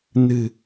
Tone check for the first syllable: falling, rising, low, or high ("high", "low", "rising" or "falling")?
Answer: low